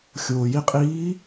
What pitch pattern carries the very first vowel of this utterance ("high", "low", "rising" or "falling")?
low